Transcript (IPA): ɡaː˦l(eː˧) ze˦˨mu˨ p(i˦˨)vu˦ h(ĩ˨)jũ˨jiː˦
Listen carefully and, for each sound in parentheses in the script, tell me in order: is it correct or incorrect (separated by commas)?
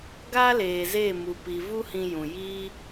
incorrect, incorrect, incorrect